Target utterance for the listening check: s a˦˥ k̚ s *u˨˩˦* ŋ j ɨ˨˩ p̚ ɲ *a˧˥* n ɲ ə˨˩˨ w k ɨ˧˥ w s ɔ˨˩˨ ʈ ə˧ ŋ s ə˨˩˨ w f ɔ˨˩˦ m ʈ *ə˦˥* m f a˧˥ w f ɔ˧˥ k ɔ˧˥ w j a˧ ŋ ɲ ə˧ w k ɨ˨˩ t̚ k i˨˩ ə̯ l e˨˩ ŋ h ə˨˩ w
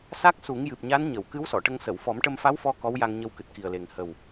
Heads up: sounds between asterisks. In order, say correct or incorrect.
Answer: correct, correct, incorrect: ə˧

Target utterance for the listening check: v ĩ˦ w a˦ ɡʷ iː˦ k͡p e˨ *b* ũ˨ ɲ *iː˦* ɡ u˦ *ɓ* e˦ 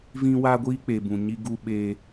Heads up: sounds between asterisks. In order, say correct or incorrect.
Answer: correct, incorrect: i˦, correct

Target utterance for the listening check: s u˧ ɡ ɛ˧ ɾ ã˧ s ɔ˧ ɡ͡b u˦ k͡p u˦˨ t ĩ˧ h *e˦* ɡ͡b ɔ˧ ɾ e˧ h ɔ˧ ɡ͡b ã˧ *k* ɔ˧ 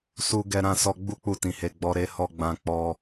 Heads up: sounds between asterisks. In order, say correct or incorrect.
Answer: incorrect: e˧, incorrect: k͡p

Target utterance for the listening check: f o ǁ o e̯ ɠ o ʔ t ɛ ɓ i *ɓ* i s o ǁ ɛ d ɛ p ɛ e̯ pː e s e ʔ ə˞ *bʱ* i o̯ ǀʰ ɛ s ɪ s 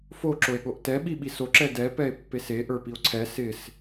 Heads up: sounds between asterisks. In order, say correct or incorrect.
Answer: correct, incorrect: p

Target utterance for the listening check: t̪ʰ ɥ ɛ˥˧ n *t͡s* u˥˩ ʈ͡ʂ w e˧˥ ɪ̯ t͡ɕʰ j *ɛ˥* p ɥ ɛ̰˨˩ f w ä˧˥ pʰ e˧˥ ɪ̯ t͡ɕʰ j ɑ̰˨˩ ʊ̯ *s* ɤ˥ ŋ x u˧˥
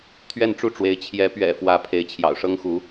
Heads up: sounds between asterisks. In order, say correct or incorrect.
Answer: incorrect: ʈ͡ʂ, incorrect: ɛ˧˥, incorrect: ʂ

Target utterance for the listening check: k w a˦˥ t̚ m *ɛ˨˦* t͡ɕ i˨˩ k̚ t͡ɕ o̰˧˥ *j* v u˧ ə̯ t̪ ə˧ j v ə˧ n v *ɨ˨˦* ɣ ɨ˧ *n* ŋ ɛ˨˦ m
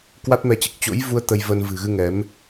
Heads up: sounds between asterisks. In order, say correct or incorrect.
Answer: incorrect: ɛ˧, correct, incorrect: ɨ̤˨˩, incorrect: none

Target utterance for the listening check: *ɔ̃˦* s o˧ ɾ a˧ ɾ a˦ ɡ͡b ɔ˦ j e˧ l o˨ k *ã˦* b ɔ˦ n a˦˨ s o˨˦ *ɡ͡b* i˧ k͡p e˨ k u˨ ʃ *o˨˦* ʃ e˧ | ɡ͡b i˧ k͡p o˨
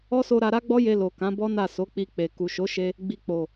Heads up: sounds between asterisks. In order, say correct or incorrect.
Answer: incorrect: ɔ˦, incorrect: ã˨˦, incorrect: k͡p, correct

